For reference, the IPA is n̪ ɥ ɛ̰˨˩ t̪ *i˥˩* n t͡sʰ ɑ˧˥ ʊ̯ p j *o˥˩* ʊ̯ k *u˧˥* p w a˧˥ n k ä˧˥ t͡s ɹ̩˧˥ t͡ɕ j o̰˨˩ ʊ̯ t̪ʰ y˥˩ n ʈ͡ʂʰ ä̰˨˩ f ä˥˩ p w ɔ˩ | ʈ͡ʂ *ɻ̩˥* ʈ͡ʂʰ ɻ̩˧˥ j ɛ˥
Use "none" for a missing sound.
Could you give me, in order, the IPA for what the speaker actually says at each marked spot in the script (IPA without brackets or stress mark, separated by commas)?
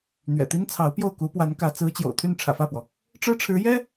i˥, o˥˩, u˧˥, ɻ̩˥